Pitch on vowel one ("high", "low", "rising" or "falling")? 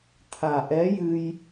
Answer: low